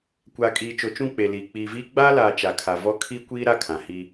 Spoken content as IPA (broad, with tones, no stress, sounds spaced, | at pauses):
kʷ aː˨ kʼ iː˨ t͡ʃ o˨ t͡ʃ ũ˦˨ k͡p e˨ l iː˨ k͡p iː˨ v iː˦ ɡ͡b aː˦ l aː˨ t͡ʃ a˨ kʰ a˨ v ɔ˦ kʰ i˦ kʷ iː˦ ɾ a˦ kʰ ã˨ h i˦